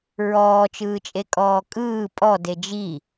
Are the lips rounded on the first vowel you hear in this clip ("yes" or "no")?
yes